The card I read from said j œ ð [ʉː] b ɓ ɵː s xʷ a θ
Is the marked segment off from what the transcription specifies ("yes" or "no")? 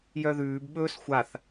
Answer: no